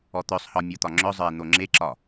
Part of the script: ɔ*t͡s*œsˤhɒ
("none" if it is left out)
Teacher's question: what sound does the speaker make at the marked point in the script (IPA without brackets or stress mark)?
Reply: t̪